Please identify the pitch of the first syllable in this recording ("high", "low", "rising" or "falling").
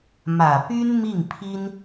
low